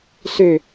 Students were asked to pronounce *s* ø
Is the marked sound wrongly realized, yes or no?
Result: no